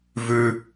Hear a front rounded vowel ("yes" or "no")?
no